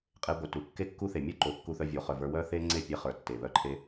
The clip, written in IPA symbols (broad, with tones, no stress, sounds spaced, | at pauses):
qʼ e˧ ɡʷ œ˨ t u˨ kː e˦ kː u˦ θ e˨ mʲ o˦ ǃ o˨ kː u˧ θ œ˧ vʲ o˨˦ χ œ˨ v ə˞˧ w œ˦ θ e˦ ŋ͡ǀ e˦˨ pʲ e˧ χ ə˞˨ tː e˨ β œ˧ ǃʰ e˧